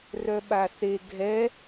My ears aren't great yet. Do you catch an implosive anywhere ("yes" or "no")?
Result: yes